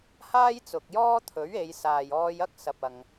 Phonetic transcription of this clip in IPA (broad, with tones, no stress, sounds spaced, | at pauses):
h aː˥ j t͡s ʊ˨ k̚ j ɔː˥ t̪ʰ ɵ˨˥ ɥ e˨˧ j s aː˨ j ɔː˧ j ɐ˥ k̚ s ɐ˨ p̚ ɐ˨ ŋ